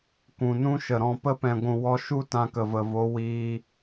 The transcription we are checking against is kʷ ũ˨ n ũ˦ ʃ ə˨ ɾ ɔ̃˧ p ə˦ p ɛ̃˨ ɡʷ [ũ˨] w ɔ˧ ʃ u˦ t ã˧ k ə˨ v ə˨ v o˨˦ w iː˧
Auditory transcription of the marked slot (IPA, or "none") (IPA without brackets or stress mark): ũ˨